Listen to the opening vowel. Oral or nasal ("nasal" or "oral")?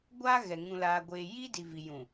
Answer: oral